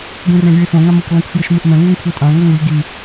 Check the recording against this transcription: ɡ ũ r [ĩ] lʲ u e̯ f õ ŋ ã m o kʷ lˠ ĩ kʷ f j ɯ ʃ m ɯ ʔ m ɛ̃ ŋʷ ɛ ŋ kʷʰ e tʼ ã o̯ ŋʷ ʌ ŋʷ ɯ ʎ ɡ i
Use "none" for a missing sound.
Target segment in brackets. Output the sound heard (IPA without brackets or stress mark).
ẽ